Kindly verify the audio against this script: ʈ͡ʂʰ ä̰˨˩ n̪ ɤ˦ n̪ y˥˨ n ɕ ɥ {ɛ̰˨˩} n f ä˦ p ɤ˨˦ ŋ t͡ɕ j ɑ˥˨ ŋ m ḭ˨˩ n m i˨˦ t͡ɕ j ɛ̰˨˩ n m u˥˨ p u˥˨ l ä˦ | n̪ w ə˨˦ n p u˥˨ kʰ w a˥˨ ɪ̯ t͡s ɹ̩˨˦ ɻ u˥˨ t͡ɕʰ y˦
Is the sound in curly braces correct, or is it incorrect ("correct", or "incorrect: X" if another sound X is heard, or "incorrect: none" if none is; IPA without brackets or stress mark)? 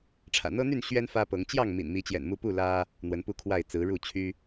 incorrect: ɛ˦